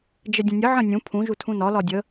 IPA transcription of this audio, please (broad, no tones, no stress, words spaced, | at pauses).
d͡ʒədʲə̃nʲə ʕə̃nʲũ pʰũ ʒutʰũnɒ lɒdʲə